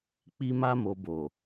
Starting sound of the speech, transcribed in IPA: k͡p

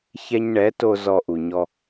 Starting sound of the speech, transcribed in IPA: ç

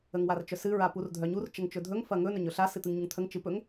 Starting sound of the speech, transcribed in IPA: ə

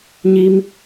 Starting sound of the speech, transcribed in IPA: ɲ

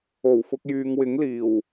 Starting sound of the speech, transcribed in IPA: o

